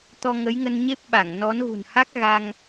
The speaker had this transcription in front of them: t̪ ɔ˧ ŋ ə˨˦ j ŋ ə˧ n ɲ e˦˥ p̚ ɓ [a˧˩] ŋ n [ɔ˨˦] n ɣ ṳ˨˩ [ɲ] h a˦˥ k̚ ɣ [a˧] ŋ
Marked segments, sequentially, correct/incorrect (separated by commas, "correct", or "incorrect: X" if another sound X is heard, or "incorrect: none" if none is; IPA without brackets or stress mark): correct, correct, incorrect: n, correct